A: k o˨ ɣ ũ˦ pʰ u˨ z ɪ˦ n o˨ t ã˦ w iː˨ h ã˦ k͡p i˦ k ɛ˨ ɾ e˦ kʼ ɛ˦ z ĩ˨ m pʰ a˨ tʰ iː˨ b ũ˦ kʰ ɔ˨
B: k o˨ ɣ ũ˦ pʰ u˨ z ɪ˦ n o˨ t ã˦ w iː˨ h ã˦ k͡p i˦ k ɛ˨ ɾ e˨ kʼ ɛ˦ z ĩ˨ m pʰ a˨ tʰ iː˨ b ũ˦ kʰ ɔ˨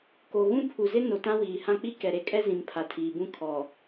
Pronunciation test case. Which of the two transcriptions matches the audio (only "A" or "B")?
A